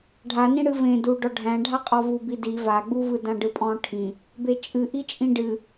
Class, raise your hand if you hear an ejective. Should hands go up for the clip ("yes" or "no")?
yes